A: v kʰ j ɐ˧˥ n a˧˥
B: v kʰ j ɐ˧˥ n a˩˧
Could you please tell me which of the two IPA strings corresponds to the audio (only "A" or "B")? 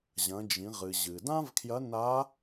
A